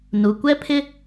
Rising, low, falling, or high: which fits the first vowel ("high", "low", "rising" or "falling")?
low